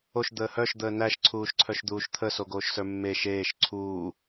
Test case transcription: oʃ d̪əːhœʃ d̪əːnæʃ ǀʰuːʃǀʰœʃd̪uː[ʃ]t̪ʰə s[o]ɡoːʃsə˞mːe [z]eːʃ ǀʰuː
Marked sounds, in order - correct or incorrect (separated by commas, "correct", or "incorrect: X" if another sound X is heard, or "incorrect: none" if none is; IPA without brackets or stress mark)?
correct, correct, incorrect: ʃ